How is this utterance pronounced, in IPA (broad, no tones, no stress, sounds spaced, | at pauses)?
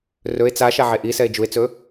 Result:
r ɵ e̯ t͡s a ʃ a ʕ e ʔ i s ɛ e̯ d͡ʒ u e̯ t͡s ɵ